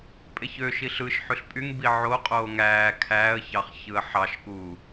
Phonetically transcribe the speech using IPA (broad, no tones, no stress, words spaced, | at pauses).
pʼeçøʃiɬ ɯʃ ħyɬpʼyŋbi ʕoqʼoː ŋæː kʰæːə̯çɑχ çɯə̯ħɑʃkuː